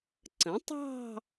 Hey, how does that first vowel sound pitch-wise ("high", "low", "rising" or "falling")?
rising